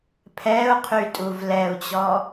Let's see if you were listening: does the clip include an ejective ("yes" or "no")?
yes